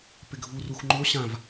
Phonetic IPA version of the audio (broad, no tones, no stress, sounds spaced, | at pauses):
p ɪ ɡʱ u r u x ŋ͡ǃ o ɕ ã v